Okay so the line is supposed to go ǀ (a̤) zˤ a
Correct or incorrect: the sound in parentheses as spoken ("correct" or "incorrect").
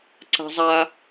correct